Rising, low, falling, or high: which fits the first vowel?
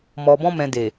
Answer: low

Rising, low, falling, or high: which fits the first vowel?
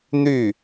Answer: falling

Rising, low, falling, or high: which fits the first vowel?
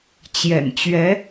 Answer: low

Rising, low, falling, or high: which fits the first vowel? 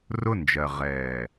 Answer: falling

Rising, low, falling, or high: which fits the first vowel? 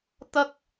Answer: high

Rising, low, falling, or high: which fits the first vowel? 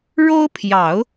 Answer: high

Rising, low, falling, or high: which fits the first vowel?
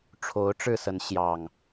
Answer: rising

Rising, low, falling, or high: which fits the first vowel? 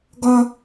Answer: high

